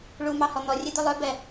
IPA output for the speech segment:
ɭumɑhɔ n̪ɔrʲɛd̪ɵ lˠœbɛ

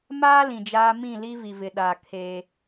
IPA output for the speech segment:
maː˦ lĩ˨d͡ʒaː˦ mĩ˦˨ li˦vi˨vɪ˨ ɗa˨ kʰeː˦

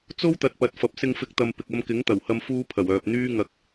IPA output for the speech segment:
t͡so˥wt̪ɐ˨t̚ pɐ˨˥t̚fɐ˨˥p̚sɪ˧ŋfɪ˧k̚ t̪ɐ˧m pɪ˨k̚ɐ˧mkɪ˨˥ŋ t̪ɐ˨˩whɐ˧m fuː˥pʰɐ˨˩wœː˨p̚ n̪yː˥ŋɐ˧k̚

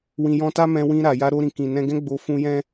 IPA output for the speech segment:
wĩ˧jɔ̃˦ ta˦mɛ̃˧ wĩ˧ ɾa˨ja˧ ɾo˧ɾĩ˨ kĩ˨ nɛ̃˧ɡɛ̃˦ ɡ͡bo˧fũ˧ jɛ̃˦

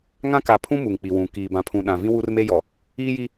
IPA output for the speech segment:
ŋã˦ka˨˦pʰũ˦ mu˨ŋk͡pi˨wũ˨ kiː˨bã˨pʰũ˨ ɗã˨vĩ˦ wu˦rme˦jɔ˨ | iː˦ji˦

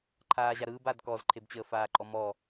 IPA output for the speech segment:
ǃʰaːʑaɾɯːbad kɔzǃʰebt͡ɕəː faːǃʼɔmɔ

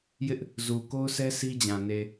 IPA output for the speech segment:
jɪ˦ʔ | zu˨ ko˦ʊ̯sɛ˦ si˦d͡ʑã˨ ne˨

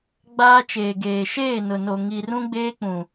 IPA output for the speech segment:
ɡ͡baː˦t͡ʃeː˨ɡeː˨ ʃeː˦˨nʊ˨no˨ ŋi˨rũ˦ɡ͡beː˦ k͡pũ˨

